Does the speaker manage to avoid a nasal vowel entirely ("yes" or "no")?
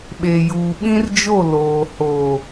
no